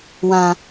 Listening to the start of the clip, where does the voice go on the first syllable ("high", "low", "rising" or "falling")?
high